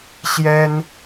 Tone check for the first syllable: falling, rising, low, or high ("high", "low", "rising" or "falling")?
high